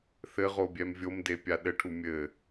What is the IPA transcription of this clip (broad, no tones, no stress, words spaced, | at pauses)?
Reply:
θɘʁobʲɛm vʲomdepʲa ɗɘʈʰu mʲɘ